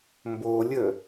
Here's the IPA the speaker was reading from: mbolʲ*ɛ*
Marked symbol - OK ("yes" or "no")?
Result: no